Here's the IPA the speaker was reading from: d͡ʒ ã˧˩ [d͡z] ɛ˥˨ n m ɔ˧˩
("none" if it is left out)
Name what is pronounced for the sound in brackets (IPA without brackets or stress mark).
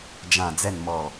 d͡z